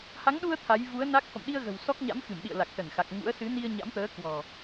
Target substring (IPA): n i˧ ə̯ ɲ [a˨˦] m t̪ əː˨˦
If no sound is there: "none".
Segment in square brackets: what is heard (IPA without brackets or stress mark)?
a̰˧˥